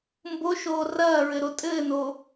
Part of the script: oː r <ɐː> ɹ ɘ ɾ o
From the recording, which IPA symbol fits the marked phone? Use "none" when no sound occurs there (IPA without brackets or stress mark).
ɐː